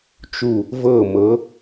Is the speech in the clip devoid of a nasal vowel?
yes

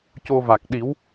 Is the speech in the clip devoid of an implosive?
no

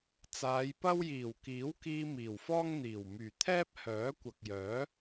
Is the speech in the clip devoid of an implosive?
yes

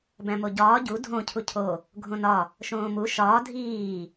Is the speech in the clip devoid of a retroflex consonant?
yes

